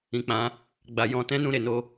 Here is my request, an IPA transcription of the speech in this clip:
ĩ˨ k͡p ã˨˦ | ɡ͡b a˨ j ɔ̃˧ t ɛ̃˦ n ũ˦˨ ɾ e˨ n o˧

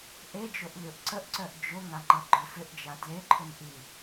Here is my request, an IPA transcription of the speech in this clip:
ʔ e d͡ʒ o ʔ lʲ o ʔ ǀ ə ʔ ǀ œ ʔ d͡ʒ ʊ ŋ a ŋ͡ǃ ʌ ɡ͡ǃ œ f ʏ ʔ d͡ʒ a d l e ǃʰ ʏ n ʔ i

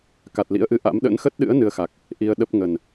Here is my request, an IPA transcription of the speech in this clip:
k a˨˩ t̚ l ḭ˧˥ ə̯ ʔ ɨ˨˦ ʔ a̰˧˥ m ɗ ə̰˧˥ n x ə˦˥ t̚ ɗ ɨ̰˧˥ ə̯ n ɨ˧ ə̯ x a˨˩ k̚ | ʔ i˧ ə̯ ɗ ə˦˥ p̚ ŋ ə˨˩ n

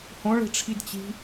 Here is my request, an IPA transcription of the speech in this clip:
h õ ɭ e̤ ʈ͡ʂʰ i d t͡ɕ i̤

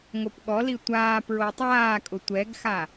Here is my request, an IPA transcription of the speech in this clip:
ŋ o p ɠ ɔ l i tʷ aː p ɹ o tˤ aː kʼ ʊ tʷ ɛ ɡ x a

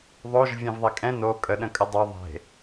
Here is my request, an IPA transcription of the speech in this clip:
ðˤ o ʒ vʲ ɛ̃ v ðˤ e kʼ ɛ̃ n o kʼ ə ɗ ə̃ kʼ ə dˤ ø ðˤ e̤

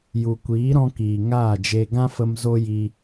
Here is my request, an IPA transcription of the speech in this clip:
j u˨ kʷ iː˨˦ ɾ ɔ̃˧ k iː˨ ŋ aː˦˨ d͡ʒ e˧ ɡ ã˦ f ə˧ m z o˦ j i˧

